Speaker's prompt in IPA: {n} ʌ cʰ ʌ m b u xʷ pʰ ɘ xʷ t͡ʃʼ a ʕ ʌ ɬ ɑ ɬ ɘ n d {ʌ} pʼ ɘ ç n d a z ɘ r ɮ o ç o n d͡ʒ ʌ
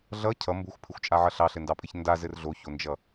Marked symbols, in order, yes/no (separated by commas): no, no